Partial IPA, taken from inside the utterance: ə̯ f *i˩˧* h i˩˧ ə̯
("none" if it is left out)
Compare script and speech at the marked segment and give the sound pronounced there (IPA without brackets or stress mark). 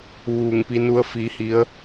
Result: i˩˧